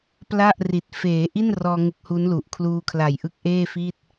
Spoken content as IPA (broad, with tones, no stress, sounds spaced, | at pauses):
p l a˥˩ ʔ r i˨˩ t̚ f eː˩˦ ʔ i˥˩ n r ɔː˧ ŋ ɯ˦˥ k̚ h u˦˥ n l u˨˩ ʔ kʰ l uː˧ kʰ l a˨˩ j ʔ ɯ˦˥ k̚ ʔ eː˥˩ f i˥˩ t̚